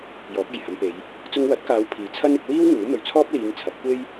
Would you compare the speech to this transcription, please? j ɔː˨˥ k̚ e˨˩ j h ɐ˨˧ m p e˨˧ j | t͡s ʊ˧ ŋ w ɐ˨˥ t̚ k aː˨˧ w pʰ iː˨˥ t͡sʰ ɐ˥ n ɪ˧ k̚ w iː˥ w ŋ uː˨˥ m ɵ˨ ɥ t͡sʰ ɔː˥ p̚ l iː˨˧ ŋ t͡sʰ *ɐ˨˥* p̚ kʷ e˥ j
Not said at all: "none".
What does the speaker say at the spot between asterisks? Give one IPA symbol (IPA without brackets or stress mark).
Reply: ɐ˨˥